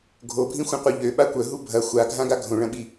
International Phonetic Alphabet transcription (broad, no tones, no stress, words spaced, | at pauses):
ɡʱobʱĩxʷɐ̃qʷœ ʎøɓa kʷœɦu bʱɐ xʷaɡʱãɡa ɡʱõɭɐ̃ɓi